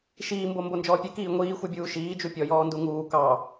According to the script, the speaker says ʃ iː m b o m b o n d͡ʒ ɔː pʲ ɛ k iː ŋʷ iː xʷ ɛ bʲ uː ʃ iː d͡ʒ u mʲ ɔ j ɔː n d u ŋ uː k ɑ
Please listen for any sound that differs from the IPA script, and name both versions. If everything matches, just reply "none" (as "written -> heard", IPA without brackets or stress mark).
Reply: mʲ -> pʲ